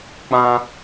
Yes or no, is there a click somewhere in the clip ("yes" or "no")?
no